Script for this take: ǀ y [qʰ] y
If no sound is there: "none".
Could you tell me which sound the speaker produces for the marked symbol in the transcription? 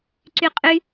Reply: qʼ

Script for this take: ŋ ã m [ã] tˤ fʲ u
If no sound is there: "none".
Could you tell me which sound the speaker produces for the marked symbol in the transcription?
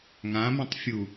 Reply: ɐ̃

